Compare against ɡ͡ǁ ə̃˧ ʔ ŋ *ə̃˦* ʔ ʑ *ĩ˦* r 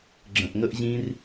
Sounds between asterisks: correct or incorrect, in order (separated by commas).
incorrect, correct